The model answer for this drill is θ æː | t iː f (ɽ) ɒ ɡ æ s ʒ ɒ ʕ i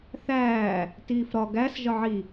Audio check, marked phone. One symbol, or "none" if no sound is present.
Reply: ɾ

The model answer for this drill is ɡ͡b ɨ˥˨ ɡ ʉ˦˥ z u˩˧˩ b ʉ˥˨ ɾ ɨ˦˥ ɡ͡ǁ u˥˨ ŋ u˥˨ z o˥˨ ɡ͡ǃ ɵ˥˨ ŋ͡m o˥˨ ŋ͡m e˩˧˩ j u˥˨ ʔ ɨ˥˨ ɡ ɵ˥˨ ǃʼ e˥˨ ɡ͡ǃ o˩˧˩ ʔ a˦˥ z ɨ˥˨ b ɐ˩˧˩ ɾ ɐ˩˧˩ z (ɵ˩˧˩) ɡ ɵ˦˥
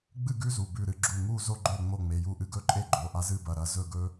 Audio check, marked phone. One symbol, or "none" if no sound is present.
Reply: ɵ˥˨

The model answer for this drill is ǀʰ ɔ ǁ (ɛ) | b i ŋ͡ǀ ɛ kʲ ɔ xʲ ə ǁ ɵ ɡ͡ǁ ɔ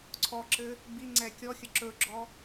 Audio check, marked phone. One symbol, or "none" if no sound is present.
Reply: ɘ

